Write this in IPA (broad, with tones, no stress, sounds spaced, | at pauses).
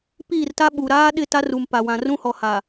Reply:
p iː˦˨ r t a˦ ɓ u˨ ɾ aː˦ ɗ ɪ˦˨ t a˦ r u˨ m p a˨ w ã˨ r ũ˦ h ɔ˨ h a˨